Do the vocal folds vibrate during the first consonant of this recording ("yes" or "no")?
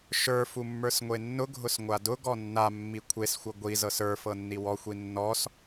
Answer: no